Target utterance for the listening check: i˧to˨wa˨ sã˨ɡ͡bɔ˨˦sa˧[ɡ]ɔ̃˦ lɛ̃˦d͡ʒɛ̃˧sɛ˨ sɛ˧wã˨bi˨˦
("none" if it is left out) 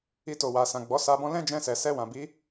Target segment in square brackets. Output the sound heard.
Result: b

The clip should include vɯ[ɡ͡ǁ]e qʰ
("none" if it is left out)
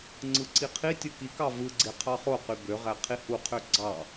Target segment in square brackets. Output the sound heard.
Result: ɡ͡ǀ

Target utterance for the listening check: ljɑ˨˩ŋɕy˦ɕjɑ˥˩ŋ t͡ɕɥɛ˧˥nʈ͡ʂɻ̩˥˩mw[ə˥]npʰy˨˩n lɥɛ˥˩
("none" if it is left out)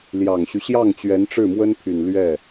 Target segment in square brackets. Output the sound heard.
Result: ə˥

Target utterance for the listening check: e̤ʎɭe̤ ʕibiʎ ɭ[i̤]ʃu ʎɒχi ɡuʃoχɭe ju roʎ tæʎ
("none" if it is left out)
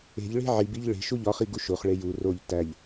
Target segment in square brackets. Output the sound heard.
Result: e̤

